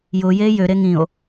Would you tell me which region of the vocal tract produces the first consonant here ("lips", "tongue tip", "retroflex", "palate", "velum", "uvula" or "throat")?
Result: palate